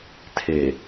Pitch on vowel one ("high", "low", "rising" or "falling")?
low